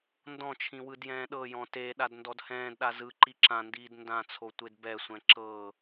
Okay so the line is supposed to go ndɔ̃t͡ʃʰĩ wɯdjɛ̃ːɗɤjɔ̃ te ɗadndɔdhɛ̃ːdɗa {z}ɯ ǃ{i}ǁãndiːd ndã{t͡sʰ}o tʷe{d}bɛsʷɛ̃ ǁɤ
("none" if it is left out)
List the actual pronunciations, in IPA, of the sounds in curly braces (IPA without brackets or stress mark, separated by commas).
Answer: z, i, t͡sʰ, d